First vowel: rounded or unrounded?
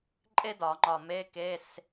unrounded